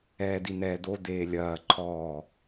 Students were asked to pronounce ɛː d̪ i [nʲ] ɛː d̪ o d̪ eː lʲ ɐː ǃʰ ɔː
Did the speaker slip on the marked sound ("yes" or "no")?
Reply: yes